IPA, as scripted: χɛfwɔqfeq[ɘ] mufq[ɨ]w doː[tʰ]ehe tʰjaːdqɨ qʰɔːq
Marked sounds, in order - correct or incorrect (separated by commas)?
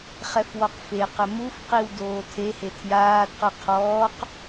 correct, incorrect, correct